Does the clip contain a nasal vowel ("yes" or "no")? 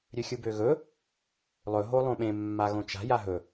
yes